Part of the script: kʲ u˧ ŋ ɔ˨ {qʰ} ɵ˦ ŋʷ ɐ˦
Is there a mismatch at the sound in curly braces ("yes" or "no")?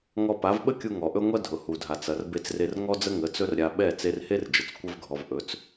yes